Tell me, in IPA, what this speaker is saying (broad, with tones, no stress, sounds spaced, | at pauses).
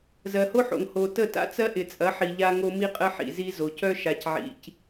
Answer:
z ɜ˨ h o˦ ħ o̰˨ ŋ h o˨ t ə˦˨ t a̰˦ t͡s ɜ˦ ʔ ɪ˨ t͡sʼ ɐ˨˦ ħ i˨ ʎ a˦ ŋ o˦ m i˦ qʼ ə˦ ħ ḭ˨ z i˦ z o˨ c œ˦ ʃ a˨ c ʕ ḭ˨ c